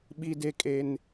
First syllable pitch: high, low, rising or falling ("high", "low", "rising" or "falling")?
high